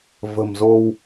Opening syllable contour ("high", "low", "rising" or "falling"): low